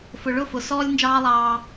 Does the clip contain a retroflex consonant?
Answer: yes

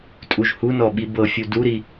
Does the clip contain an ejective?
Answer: yes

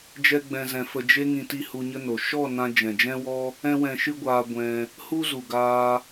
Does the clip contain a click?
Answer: no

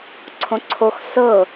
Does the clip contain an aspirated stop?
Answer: yes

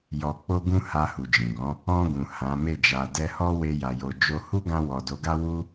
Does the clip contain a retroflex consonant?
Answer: no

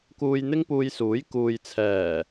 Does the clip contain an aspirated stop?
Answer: yes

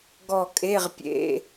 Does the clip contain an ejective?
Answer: yes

